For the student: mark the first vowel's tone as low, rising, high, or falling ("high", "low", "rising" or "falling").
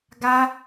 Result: high